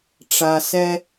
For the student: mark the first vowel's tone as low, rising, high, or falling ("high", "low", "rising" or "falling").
low